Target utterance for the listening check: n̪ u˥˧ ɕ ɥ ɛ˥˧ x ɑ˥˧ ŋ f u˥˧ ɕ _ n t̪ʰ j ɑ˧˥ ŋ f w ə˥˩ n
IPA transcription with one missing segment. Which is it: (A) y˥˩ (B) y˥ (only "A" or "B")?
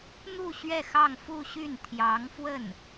A